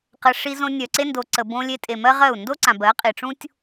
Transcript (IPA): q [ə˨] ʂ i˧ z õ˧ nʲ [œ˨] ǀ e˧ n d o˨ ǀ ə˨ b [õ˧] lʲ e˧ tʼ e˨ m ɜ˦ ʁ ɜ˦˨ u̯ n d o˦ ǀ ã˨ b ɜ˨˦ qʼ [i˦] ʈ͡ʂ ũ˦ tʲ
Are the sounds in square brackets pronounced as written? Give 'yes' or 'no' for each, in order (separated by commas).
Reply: yes, yes, yes, no